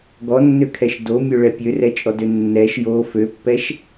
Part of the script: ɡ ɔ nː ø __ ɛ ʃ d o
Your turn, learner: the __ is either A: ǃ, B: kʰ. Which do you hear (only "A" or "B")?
B